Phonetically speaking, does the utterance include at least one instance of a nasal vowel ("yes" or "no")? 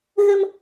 no